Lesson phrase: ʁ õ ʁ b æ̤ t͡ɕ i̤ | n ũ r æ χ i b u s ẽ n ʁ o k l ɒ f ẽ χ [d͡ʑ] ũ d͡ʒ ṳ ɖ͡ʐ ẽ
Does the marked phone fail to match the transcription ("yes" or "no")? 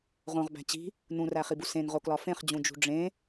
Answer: no